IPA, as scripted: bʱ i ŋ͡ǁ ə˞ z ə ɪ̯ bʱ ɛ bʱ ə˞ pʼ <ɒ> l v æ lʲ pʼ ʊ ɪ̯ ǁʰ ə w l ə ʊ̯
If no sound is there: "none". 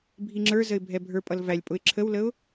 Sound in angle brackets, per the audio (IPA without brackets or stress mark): ʌ